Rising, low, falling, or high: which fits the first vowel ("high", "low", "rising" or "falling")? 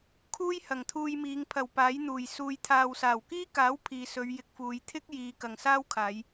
high